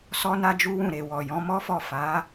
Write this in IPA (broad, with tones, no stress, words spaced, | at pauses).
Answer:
sɔ˦na˦d͡ʒu˦wũ˦˨ ɾe˨ wɔ˨jɔ̃˨˦mɔ˦fɔ˦˨ fa˨˦